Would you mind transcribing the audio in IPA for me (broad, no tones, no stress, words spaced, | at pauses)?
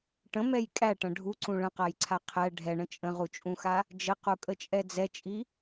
ʈə̃mɛj kʼæʈɐ̃ ɖʱuǀũ ɭə̃qajǀʰa qʰɛ ɖʱɛɳə̃ t͡ʃʼə̃ʁut͡ʃʼũxa | d͡ʒəqukʼət͡ʃʼɛ d͡zɛt͡ʃʼi